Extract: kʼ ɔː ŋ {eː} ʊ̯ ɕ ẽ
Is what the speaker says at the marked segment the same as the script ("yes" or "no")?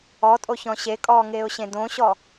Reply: yes